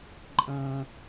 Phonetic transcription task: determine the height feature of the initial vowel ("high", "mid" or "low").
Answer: mid